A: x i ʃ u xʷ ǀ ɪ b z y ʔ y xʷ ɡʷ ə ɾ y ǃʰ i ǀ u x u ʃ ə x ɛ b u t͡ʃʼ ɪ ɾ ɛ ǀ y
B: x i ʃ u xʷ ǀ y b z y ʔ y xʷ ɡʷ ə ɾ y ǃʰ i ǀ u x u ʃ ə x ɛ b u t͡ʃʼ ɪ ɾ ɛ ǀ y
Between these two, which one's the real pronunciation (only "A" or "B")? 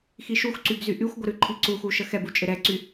B